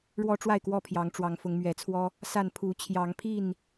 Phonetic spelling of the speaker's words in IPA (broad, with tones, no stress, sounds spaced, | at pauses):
ɻ w ɔ˦ ʈ͡ʂ w a˥˨ ɪ̯ k w ɔ˥˨ pʰ j ɑ˨˦ ŋ ʈ͡ʂ w ɑ˨˦ ŋ f ʊ˨˦ ŋ m ɥ ɛ˨˦ t͡sʰ w ɔ˦ | s a˥˨ n pʰ u˨˦ t͡ɕʰ j ɑ˨˦ ŋ pʰ i˥˨ n